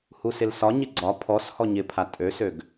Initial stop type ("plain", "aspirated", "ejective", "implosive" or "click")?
click